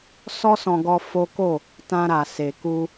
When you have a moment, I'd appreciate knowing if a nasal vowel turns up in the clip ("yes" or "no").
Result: yes